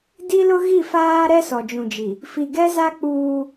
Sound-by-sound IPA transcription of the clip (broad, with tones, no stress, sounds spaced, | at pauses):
d i˦ l ʊ˦ ɣ i˦˨ f aː˦ ɾ ɛ˦ s ɔ˨ d͡ʒ ũ˨ d͡ʒ i˨ | f i˨ ɡ ɛ˦ z a˦ k͡p uː˦